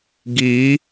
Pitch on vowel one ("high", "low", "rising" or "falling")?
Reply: rising